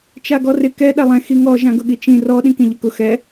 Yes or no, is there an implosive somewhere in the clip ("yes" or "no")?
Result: yes